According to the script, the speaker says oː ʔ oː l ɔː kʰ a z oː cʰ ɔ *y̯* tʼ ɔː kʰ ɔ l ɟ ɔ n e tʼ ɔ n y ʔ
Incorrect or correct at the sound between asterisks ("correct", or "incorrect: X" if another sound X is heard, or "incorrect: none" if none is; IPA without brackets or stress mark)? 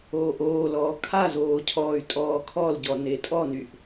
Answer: correct